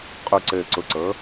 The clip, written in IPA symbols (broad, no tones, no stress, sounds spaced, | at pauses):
qʼ u ǀ ɘː ǀ ʊ ǀ ɤ